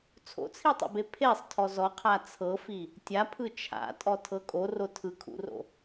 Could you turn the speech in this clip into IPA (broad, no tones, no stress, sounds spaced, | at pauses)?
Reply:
t͡sʰ o̰ t͡sʰ i tˤ o̰ b e pʰ e sˤ tʰ ɔ z ɔ qʰ a t͡sʰ ɤ f i | tʲ a pʰ ɯ t͡ʃʰ a̰ tʼ ɔ tʰ ɤ kʼ o r o tʰ ɯ kʰ ṵ r o̰